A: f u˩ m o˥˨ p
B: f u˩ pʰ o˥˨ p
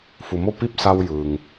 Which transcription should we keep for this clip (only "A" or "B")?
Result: A